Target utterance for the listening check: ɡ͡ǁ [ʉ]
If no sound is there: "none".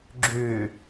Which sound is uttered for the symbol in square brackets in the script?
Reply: ʉ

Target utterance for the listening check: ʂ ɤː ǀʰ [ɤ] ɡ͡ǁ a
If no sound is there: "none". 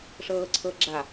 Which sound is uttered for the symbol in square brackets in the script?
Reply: ɤ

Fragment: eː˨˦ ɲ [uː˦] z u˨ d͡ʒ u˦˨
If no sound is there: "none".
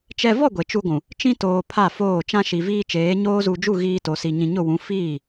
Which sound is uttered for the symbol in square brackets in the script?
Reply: oː˦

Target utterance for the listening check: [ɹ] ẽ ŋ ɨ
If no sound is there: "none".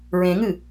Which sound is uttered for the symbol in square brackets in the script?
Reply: ɹ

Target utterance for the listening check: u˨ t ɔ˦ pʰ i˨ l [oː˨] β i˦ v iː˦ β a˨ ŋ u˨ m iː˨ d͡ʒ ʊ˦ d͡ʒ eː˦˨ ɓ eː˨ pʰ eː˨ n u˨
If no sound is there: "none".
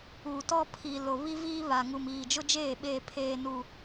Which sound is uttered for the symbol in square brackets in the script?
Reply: o˨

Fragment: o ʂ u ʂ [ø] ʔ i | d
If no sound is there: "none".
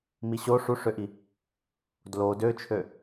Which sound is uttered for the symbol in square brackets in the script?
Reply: ø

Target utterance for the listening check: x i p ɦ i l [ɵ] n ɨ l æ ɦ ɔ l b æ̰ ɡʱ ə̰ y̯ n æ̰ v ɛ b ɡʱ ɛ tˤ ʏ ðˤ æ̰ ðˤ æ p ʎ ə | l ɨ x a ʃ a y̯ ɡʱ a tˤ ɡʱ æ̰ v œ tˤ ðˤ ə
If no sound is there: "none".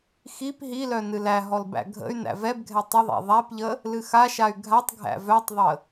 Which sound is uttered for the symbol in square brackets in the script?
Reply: œ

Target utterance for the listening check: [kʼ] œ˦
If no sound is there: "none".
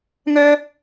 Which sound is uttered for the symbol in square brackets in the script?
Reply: ŋ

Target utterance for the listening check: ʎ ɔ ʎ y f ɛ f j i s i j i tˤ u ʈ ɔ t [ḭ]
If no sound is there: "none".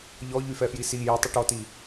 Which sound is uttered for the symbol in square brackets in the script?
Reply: i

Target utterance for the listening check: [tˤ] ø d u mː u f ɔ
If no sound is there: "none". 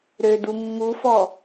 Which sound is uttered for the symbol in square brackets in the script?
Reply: ɾ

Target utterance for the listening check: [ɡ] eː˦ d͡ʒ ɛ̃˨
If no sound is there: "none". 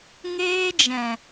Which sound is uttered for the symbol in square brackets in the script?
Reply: ŋ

